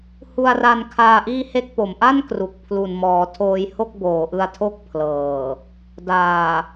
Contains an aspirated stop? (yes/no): yes